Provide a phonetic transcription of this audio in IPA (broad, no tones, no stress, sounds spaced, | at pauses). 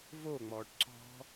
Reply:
v o ŋ͡m ɔː ʈ ǀ ɔ̤